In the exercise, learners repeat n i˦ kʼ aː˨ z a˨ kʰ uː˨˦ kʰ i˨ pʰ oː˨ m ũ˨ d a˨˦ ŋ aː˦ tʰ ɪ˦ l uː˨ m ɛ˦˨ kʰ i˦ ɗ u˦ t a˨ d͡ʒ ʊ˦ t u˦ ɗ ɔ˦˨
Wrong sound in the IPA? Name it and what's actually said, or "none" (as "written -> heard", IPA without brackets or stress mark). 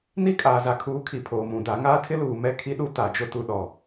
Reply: none